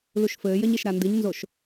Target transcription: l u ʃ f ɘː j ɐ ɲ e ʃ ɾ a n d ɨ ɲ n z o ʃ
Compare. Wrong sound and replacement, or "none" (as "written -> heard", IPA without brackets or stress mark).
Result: none